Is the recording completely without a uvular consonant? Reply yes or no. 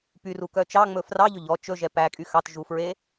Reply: yes